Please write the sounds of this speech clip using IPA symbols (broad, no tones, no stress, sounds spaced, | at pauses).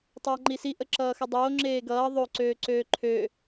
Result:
tˤ ʌː ŋ͡ǃ i s i ʔ ə ǁ ʌː x ə dˤ oː ŋ͡ǁ eː ɡ ʌː ðˤ o ǀ øː ǀ øː ǃʰ ø